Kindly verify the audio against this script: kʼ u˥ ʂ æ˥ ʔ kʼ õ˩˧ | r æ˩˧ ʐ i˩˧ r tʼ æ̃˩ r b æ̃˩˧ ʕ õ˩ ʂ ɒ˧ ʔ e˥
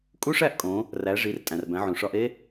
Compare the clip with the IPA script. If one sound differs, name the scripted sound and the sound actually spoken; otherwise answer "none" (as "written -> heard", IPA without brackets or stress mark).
none